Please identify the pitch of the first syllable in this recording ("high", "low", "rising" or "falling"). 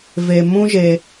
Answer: low